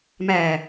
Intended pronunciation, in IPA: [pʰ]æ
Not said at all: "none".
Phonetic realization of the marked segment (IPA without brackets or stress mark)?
m